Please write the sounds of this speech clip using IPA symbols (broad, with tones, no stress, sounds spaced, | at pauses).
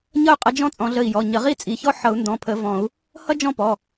ɲ ʌ˥˧ y̯ qʼ ʌ˨˦ d͡ʒ ɔ̃˥ t͡sʼ ɔ̃˨˦ ɮ ə˧˩ i̯ j ɔ˩˧˩ ɲ ə˨˩˦ ʁ i˥ t͡sʼ i˩˧˩ ç ɔ˥ ħ ʌ˨˩˦ u̯ n d ɔ̃˩˧˩ pʰ ə˨˩˦ v ɔ̃˨˩˦ u̯ | h ʌ˥ d͡ʒ ɔ̃˥˧ p ɔ˩˧˩